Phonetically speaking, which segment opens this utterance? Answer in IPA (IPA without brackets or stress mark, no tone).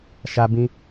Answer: ʃ